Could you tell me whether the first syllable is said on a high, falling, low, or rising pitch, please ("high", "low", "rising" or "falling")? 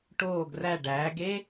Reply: falling